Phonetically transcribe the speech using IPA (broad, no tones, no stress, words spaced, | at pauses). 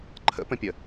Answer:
ǃʰə̰pə̃pʲə